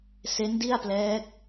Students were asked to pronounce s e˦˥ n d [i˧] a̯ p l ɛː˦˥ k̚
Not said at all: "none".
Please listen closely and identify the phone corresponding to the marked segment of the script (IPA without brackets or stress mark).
i˥˩